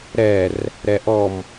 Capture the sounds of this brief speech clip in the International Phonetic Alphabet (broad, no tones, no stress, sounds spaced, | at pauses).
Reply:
ɾ ɛ r | ɾ ɛ ʔ ɔ m